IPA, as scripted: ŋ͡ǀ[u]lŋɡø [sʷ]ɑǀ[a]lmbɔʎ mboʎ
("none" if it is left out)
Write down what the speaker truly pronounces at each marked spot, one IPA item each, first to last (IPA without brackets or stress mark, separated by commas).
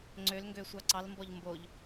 ø, sʷ, ɑ